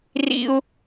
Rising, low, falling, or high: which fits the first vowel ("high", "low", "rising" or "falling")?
high